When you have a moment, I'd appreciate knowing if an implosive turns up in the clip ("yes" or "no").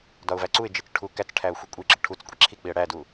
no